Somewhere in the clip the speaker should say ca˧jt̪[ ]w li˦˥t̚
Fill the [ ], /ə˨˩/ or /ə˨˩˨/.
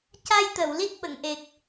ə˨˩˨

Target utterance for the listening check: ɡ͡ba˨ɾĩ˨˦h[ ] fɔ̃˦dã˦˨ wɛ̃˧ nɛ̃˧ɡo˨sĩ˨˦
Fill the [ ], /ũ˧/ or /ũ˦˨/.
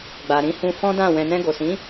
ũ˧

